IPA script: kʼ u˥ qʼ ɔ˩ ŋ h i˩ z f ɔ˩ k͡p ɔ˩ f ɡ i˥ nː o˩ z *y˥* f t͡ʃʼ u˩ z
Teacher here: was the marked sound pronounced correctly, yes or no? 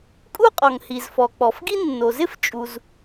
no